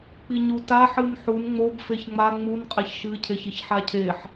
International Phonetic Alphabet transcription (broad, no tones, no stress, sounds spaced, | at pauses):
k͡p i ɲ u t a ħ ɨ n ħ u n ŋ͡m o b f e ç ŋ͡m a ŋ͡m u n qʼ e ç ʃ ɨ cʰ e ç i ç ħ a cʰ e ħ